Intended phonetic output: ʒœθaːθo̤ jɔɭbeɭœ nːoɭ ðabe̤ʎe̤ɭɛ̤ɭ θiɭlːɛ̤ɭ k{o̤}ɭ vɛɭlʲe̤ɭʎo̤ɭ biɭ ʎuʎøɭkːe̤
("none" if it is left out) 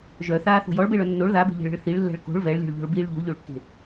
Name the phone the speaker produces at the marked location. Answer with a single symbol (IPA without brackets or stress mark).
o̤